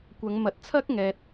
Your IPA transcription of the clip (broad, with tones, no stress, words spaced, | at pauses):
kʷɐ˨˧ŋ mɐ˨˥t̚t͡sʰɐ˥k̚ŋɛː˨t̚